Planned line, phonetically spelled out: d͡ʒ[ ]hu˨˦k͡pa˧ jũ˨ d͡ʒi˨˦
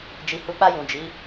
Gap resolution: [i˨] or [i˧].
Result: i˨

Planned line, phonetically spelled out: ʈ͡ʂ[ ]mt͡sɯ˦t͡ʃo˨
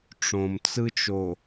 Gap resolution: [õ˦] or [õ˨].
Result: õ˨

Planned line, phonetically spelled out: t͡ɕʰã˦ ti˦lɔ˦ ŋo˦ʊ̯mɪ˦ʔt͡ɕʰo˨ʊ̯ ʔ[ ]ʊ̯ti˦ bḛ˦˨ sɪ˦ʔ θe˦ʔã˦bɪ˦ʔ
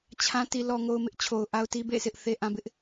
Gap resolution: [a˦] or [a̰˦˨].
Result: a˦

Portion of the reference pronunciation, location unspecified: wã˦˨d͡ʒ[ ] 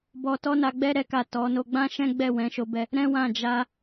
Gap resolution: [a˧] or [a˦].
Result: a˧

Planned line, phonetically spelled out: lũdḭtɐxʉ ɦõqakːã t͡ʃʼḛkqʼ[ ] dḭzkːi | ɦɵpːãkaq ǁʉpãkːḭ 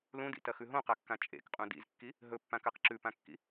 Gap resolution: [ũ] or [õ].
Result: ũ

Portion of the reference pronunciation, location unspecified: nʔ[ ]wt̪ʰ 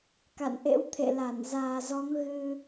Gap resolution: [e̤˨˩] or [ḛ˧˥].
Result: ḛ˧˥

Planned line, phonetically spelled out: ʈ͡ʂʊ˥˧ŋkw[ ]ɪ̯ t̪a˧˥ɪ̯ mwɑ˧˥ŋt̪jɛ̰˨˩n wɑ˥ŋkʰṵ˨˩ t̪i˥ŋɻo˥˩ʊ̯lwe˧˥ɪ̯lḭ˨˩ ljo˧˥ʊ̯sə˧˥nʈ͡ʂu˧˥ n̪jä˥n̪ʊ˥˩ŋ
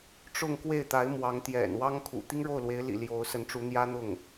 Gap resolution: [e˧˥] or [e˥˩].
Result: e˥˩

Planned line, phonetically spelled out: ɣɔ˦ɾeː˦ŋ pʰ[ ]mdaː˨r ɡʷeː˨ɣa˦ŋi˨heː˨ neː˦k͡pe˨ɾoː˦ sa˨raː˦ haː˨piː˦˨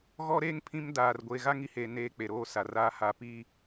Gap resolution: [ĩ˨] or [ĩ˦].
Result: ĩ˦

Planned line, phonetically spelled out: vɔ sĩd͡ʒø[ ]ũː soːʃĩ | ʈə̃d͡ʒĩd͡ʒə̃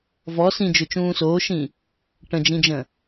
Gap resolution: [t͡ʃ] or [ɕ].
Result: t͡ʃ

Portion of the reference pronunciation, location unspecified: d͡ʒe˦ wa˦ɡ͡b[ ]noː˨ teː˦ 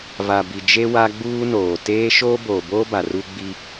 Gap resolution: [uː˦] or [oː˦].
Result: uː˦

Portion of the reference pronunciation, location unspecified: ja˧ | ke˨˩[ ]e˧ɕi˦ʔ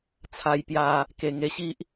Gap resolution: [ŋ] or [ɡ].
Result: ŋ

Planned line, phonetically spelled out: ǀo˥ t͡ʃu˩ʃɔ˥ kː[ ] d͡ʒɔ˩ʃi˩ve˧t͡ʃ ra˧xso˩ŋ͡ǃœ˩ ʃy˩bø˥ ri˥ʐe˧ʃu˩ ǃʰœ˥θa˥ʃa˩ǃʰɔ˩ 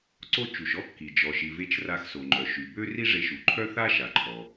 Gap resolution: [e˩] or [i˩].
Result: i˩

